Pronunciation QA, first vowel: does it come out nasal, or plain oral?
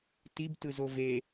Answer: oral